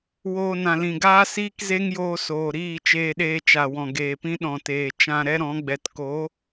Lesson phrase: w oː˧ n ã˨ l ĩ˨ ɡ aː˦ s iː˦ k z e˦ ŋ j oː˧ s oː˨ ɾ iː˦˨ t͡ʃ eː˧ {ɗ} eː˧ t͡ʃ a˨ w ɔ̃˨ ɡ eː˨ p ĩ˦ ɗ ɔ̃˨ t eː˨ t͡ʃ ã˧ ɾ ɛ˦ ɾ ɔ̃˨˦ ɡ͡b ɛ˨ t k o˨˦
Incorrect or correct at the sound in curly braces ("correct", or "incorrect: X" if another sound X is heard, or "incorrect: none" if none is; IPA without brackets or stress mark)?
correct